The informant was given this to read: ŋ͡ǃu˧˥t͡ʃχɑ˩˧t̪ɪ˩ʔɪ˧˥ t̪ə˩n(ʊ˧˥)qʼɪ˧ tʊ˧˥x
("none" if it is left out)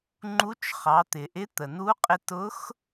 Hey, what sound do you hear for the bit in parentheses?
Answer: u˧˥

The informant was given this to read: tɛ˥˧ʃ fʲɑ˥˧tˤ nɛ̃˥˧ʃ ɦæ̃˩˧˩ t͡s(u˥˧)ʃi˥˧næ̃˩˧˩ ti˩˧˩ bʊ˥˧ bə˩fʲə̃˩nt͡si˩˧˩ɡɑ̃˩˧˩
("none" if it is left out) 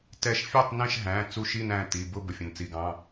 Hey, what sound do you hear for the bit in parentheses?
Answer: u˥˧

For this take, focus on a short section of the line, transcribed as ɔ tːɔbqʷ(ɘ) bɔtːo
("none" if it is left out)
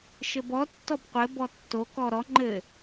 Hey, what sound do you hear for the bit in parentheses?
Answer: ɘ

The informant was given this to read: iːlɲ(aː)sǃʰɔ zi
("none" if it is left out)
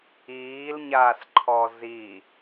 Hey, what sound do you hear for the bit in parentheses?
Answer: aː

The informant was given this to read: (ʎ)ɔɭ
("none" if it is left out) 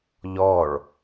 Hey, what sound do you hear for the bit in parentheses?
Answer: ʎ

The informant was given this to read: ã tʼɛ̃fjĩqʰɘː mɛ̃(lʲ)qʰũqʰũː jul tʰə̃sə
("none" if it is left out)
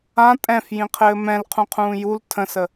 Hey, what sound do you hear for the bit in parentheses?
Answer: l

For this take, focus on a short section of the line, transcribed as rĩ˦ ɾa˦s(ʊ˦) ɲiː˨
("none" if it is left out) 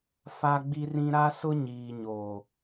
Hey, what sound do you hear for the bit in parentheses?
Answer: ʊ˦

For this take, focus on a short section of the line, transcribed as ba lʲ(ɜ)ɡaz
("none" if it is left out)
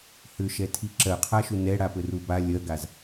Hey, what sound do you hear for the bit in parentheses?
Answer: ɜ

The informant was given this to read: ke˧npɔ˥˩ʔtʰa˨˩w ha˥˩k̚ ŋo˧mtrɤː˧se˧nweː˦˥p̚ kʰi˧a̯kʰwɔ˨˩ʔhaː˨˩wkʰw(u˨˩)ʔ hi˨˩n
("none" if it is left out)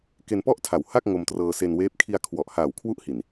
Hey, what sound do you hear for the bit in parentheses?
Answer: u˦˥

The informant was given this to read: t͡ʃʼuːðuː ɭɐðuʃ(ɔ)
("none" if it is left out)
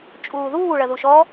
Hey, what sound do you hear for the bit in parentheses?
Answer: ɔ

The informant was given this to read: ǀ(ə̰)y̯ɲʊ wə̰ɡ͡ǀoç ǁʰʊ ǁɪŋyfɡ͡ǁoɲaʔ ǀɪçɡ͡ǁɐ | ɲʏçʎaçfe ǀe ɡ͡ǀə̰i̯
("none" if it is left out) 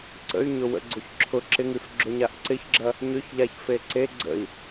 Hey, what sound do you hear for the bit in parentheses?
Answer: ə̰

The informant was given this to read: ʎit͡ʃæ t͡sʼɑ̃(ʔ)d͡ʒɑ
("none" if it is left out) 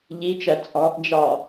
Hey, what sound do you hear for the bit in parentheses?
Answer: ʔ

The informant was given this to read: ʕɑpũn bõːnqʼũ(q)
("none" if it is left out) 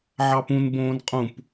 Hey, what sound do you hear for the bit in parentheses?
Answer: p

